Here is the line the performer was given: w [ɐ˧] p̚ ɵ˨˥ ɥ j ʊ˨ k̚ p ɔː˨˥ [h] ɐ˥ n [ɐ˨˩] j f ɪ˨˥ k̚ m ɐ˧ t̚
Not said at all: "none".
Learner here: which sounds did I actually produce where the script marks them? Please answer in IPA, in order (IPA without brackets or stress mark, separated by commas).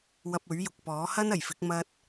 ɐ˧, h, ɐ˨˩